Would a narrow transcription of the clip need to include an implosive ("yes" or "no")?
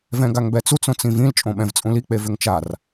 yes